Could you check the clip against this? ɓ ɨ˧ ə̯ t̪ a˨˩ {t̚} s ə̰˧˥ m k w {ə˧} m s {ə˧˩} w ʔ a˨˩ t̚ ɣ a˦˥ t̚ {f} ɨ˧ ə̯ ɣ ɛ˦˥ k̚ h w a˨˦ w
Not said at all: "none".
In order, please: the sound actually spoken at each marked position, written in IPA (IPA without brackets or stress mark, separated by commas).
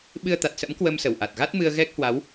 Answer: t̚, ə˧, ə˧˩, m